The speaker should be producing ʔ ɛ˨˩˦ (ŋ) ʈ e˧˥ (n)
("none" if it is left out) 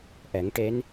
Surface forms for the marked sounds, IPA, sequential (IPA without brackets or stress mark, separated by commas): ŋ, n